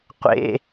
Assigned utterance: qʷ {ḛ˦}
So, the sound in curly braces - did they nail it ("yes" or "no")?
yes